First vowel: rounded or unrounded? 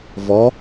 rounded